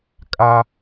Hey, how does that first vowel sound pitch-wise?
high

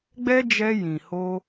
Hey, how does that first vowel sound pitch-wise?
high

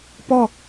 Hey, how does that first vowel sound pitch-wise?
falling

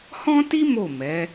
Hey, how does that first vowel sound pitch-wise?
high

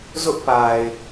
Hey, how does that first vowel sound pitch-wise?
high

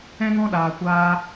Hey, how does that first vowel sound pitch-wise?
high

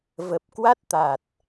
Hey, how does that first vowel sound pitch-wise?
low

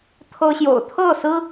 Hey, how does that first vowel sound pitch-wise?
high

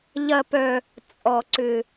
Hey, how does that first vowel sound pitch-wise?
high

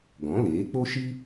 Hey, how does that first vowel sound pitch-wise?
rising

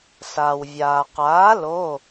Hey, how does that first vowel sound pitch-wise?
low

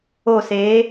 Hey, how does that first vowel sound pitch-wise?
falling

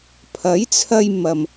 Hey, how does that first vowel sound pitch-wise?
rising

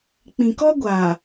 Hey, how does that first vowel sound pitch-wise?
low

